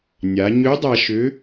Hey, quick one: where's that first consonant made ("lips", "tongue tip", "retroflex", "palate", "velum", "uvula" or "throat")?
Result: tongue tip